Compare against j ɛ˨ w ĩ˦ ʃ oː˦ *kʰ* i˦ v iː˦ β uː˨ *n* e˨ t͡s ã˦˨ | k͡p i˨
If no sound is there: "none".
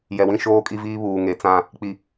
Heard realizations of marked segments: kʼ, ŋ

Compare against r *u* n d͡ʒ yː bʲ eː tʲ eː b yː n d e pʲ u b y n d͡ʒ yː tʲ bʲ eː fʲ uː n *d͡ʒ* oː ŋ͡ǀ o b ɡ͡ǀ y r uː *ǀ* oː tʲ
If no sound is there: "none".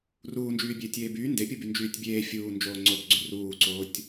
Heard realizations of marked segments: uː, d͡ʒ, ǀ

